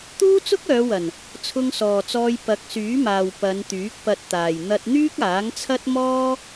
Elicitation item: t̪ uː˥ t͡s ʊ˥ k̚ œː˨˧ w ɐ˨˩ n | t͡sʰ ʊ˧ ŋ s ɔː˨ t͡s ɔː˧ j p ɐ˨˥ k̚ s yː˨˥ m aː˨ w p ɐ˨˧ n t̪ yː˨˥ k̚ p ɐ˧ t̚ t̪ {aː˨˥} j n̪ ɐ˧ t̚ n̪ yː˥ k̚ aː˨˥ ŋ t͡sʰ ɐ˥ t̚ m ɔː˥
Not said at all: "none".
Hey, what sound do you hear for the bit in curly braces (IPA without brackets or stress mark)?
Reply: aː˨